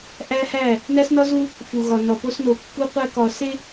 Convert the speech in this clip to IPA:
ʔ æ˦ h æ˦˨ | n æ˦ s n ɒ˦ z u˦ | f u˨ ɣ ɒ˨ n ɒ˨ p o˦ s n o˨ kː u˦ qʷ æ˦ k ɒ˨ s e˦

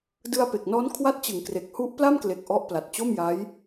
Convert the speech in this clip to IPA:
d ɯ˧ a̯ p e˨˩ k̚ n ɔː˦˥ n kʰ w a˦˥ t̚ t͡ɕ ɯ˩˦ ŋ k r e˨˩ k̚ h u˦˥ ʔ p l a˥˩ m k l e˨˩ k̚ ʔ ɔ˦˥ ʔ p l a˨˩ t̚ t͡ɕ o˥˩ m j a˦˥ j

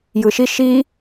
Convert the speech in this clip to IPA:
j ɯ ʃ i ʃ i

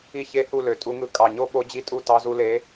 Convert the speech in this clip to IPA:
i˥˧ ç e˦˥ h u˥˧ l ø˧˩ tʼ u˦˥ ŋ ɯ˥˧ kʼ ɑ˧˩ ɲ o˦˥ ɓ o˦˥ d͡ʑ i˥˧ tʼ u˥˧ t ɑ˦˥ z u˦˥ l e˦˥

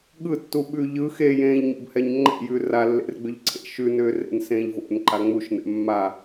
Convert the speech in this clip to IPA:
ɠ ɯ tː u ɓ ʉ ʎ ɯ x e j ẽː ʎ ɲ o̰ b h ɛ ɲ ŋ͡ǃ ɛ̰ j ʉ r a lː ḛ r ɡ͡b ʏ ʎ ǀʰ ḛ ʃ ʉ n ʏː r ḛ n s ẽː ʎ v o̰ n ǃ a ŋ͡m u ʃ n ɛ̰ mː a

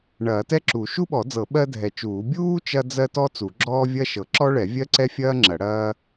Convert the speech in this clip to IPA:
ɳ ɐː˨˩˦ t ɛ˥ ǁ u˨˩˦ ʃ u˥ ɓ ɔ˨˩˦ d͡z ɤ˨˩˦ ɓ ɜ˥ dʱ ɛ˨˩˦ t͡ʃ uː˨˩˦ bʲ uː˥ t͡ʃ ɐ˥ d͡z ɜ˥ t ɔ˥ t͡s u˨˩˦ ɡ͡ǁ ɔː˥ vʲ ɐ˥ ʃ ɤ˨˩˦ ǁ ɔ˥ ɭ ɛ˨˩˦ vʲ ɜ˥ ǀ ɛ˥ fʲ ɐː˥ ŋ͡ǁ ɐ˨˩˦ ɽ ɐː˥

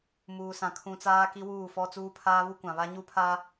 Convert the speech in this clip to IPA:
m uː˨ s ã˨ kʰ ũ˨ t͡s aː˦ k i˦ w uː˦˨ f ɔ˦ t͡s uː˦ pʰ aː˦ β u˦ kʷ ã˨ β a˦ ɲ u˦ pʰ a˦

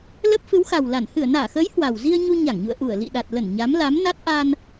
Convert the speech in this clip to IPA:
l ə˦˥ p̚ f ɨ˨˦ w x a˨˩ w l a˧˩ n h ɨ˧˩ ə̯ n aː˧˩ x əː˨˦ j h w a˨˩ w z i˧ ə̯ ɲ u˧ ɲ a˧˩ ŋ ɲ ṵ˧˨ ə̯ ʔ u˧˩ ə̯ l ḭ˧˨ ɗ a˨˩ t̚ l ə˧˩ n ɲ a˨˦ m l a˨˦ m n a˦˥ t̚ ʔ a˧ n

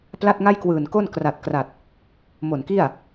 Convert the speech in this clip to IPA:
p l a˥˩ t̚ ŋ a˥˩ j k w ɯː˨˩ n k o˥˩ n k r a˨˩ t̚ k r a˨˩ t̚ | m o˨˩ n k i˥˩ a̯

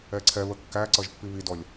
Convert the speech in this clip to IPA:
ɛ ǀʰ ɛ β ə kː æ ǀ ʌ ʒ pː i β i d ɔ lʲ

